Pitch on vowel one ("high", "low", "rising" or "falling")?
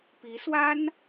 rising